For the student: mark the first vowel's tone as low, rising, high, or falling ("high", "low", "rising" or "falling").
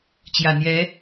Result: low